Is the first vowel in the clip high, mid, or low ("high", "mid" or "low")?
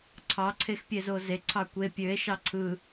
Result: low